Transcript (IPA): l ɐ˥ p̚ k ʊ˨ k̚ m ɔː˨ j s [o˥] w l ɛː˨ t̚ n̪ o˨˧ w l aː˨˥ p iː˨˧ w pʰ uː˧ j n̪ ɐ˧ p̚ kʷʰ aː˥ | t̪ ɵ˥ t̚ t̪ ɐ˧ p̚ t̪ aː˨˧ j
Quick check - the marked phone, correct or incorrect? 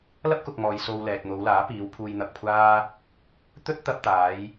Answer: incorrect